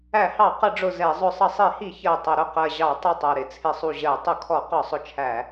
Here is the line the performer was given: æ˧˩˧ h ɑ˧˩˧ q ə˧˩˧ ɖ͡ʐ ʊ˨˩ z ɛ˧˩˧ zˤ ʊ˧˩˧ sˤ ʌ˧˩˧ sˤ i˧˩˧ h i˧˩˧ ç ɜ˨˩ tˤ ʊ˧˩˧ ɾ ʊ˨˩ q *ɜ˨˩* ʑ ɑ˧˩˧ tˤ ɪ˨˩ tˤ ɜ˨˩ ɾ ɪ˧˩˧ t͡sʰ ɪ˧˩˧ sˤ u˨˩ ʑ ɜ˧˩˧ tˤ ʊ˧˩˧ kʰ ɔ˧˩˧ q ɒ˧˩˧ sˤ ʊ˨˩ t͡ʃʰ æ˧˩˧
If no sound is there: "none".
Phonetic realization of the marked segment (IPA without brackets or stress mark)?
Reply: ɜ˨˩